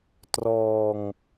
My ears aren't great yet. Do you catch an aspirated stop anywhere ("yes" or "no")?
no